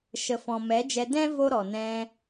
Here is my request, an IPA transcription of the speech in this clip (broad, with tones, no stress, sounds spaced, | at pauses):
ʃ ə˨ f ɔ̃˨ m ɛ˨˦ d͡ʒ ɛ˧ d ɛ̃˦ v o˦ ɾ ɔ˨ n ɛ̃˧